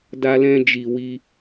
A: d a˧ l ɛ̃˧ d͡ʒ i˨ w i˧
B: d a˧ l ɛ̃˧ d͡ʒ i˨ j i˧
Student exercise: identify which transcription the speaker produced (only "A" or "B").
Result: A